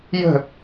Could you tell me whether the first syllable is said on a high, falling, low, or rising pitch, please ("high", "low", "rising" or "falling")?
falling